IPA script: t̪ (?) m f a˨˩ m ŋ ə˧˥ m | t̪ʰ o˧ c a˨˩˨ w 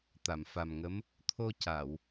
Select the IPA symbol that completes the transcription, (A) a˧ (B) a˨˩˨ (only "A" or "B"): B